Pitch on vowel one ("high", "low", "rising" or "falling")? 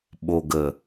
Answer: low